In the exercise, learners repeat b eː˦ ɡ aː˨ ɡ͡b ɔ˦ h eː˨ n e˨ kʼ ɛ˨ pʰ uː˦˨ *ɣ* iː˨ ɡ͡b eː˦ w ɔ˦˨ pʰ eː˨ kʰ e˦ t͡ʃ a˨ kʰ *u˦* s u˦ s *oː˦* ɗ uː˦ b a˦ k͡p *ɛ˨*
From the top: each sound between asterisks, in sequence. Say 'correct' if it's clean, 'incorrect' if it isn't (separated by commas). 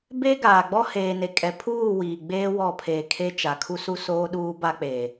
incorrect, correct, correct, incorrect